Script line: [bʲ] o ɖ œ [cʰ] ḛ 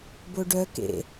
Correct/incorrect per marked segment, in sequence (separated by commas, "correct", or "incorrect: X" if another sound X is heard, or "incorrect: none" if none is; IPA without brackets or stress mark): incorrect: b, incorrect: k